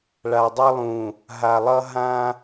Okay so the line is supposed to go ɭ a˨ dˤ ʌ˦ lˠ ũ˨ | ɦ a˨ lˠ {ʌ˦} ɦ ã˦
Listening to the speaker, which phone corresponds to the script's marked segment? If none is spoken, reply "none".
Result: ʌ˦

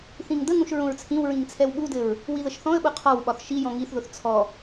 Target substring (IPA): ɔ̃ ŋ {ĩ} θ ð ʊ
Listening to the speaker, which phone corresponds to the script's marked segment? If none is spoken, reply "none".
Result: i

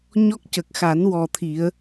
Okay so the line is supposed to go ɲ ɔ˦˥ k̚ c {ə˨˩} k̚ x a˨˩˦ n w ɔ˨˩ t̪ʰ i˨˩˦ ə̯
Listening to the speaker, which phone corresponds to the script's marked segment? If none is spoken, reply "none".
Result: ə˨˩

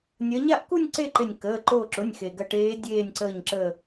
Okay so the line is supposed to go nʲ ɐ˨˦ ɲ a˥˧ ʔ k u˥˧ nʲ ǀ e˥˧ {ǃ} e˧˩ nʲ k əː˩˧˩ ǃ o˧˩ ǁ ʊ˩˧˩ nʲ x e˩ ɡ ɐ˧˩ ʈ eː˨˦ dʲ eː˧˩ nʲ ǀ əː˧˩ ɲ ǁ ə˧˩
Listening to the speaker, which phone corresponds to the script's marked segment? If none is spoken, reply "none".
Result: ǃ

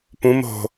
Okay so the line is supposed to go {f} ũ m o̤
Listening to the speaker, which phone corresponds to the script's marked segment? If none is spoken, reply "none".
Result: p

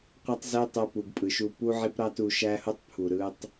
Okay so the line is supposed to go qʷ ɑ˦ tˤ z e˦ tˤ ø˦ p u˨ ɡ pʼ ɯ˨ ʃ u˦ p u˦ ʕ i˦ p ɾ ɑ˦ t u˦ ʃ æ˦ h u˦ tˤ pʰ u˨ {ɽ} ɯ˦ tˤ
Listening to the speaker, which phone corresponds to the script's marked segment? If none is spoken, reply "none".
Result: ɾ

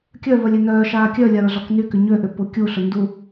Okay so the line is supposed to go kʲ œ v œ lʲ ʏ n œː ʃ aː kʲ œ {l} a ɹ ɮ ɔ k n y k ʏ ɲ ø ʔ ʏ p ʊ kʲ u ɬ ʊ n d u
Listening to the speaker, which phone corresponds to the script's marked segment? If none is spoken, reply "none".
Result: lʲ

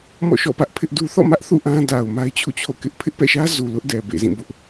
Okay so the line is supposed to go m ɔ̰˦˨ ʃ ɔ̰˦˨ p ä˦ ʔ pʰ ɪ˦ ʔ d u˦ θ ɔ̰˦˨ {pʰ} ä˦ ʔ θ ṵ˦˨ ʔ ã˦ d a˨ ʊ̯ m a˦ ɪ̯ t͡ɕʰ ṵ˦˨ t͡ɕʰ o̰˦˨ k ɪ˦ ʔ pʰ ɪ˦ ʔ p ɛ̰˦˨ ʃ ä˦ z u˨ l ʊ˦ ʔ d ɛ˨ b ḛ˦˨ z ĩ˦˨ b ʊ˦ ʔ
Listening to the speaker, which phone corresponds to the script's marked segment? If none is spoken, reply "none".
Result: m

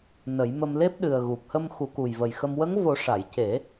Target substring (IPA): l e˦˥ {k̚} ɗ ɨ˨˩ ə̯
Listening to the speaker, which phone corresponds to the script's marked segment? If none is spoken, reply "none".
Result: p̚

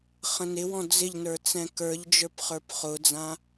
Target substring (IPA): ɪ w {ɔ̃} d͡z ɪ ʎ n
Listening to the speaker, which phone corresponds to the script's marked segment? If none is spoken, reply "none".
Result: ɔ̃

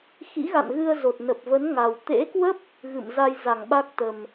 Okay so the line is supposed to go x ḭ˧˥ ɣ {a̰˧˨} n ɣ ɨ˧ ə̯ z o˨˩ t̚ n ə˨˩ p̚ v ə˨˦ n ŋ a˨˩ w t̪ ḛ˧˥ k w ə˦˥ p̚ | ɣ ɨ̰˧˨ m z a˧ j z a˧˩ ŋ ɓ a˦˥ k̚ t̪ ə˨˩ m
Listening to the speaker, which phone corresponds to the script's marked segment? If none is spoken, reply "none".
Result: a̰˧˨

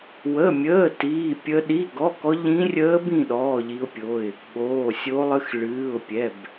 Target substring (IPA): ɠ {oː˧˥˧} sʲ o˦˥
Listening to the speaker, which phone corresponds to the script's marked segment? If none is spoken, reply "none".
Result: oː˧˥˧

